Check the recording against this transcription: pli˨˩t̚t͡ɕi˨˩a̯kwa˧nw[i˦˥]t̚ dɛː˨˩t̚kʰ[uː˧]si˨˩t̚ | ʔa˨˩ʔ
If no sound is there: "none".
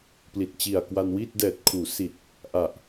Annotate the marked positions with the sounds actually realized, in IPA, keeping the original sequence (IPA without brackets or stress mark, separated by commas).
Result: i˥˩, uː˩˦